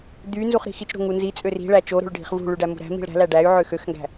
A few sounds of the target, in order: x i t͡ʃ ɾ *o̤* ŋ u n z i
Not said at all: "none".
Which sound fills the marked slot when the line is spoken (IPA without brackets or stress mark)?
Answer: o̤